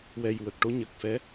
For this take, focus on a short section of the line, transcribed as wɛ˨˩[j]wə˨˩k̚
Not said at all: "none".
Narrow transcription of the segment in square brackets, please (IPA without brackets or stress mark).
j